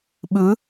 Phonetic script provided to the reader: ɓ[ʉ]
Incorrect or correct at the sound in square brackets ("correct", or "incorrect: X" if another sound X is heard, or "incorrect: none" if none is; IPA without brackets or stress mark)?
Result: correct